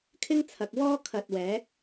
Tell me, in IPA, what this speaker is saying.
kʰ ɪ˥ ŋ t͡sʰ ɐ˨ k̚ w ɔː˥ kʰ ɐ˨ t̚ w ɛː˨˥ k̚

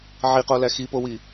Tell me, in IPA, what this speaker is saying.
ʕ i q o l æ x i p o w i

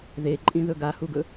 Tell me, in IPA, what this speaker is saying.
ð e ǃʼ ĩ ð ɵ ɡ a h u ɡ ɵ

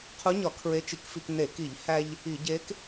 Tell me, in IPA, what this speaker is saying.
qʰ u˧˥ ɲ ɒ˧˩˧ kʰ ɹ e˧˥ t͡ʃ i˧˩˧ k f i˧ k n e˧˩˧ k i˧˩˧ ʎ h æ˧ ʎ | i˧˩˧ ɟ e˧˥ k

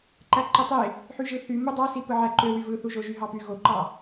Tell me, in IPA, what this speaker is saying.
ǃ æ ǃ e tˤ e | ħ y ʒ ɯ θ y m ɯ dˤ ɑ s i p ɯ ʕ æ ǃ ø w y v ɯ θ u ʒ o ʒ y ɦ ɑ p y ɣ o ǃ ɑ

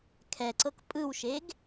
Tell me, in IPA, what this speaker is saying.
kʰ ɛ ǀ ɤ k pʼ ɯ w ʃ e ɡ

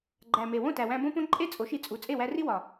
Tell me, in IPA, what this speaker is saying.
ɡ͡ǃ æ˨ m e˨ w õ˦˨ t æ˨ w æ̃˧ b õ˦ p õ˦ ǃʼ e˦ t͡sʼ o˨˦ ʃ i˧ t͡sʼ u˨˦ t͡sʼ e˦˨ w æ˧ r i˦ w ɒ˨

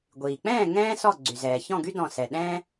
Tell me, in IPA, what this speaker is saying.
ɡʷ iː˩ k͡p ɛ̃ː˥˨ ŋ ɛ̃ː˥ s ɔ˥˨ ɡ͡ǀ y˩ z ɛː˩ ç ɔ̃˥˨ ɡ y˥ d ɔ̃˧˩ s ɛ˩ ɗ ɛ̃ː˥

